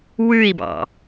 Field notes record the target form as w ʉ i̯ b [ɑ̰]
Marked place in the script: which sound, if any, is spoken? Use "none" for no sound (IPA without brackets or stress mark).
ɑ̰